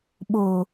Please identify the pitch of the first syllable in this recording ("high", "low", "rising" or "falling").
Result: low